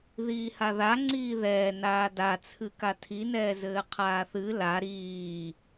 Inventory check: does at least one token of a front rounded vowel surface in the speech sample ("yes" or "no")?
no